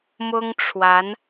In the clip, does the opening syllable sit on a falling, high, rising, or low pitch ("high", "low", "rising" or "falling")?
high